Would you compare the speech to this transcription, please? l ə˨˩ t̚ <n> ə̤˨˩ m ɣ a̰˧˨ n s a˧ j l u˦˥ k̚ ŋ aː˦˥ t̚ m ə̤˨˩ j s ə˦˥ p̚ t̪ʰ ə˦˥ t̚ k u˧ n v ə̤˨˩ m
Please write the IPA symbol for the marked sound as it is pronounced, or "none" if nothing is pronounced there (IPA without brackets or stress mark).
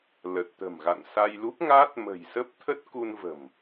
t̪